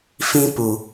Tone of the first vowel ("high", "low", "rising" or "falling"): high